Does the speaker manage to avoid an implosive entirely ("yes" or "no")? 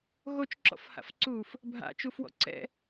yes